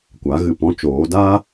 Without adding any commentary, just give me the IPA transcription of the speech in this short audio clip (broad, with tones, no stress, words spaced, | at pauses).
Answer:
kʷa˨˦ɣɨ˨pɔ̃˦t͡ʃoː˨˦ daː˦